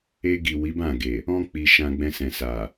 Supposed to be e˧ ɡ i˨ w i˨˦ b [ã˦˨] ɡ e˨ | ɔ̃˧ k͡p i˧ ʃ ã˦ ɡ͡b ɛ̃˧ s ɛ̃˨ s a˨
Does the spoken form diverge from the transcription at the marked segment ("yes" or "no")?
no